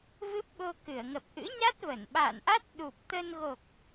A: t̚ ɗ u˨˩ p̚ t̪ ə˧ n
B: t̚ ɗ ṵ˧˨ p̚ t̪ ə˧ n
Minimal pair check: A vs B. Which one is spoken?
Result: A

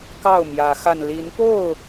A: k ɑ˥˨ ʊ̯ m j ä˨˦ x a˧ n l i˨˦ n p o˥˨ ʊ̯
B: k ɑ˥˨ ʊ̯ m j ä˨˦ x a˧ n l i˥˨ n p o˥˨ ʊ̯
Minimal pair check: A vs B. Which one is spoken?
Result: A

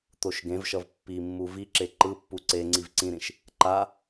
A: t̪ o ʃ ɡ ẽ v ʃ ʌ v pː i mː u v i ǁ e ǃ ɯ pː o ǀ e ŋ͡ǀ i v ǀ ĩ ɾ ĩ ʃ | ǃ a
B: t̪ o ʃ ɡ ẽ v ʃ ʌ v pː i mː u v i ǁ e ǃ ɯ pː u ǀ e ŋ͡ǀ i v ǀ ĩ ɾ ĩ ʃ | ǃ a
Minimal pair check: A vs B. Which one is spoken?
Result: B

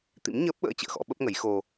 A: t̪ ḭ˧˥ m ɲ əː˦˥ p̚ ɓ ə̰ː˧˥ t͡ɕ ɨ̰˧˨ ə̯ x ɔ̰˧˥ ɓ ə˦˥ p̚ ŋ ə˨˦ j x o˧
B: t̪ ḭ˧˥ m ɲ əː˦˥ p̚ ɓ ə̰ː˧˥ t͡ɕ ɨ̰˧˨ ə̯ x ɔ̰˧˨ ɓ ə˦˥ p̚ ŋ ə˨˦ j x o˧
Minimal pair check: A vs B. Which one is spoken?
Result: A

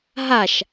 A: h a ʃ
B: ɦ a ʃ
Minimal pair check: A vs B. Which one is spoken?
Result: B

